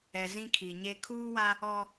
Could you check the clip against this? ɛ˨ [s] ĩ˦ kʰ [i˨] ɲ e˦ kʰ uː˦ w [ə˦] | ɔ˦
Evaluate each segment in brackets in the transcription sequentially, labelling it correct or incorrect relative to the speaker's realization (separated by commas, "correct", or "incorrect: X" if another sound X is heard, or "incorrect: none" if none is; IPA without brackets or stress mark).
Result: incorrect: z, correct, incorrect: a˦